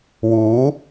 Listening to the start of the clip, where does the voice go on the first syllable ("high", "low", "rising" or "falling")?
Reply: rising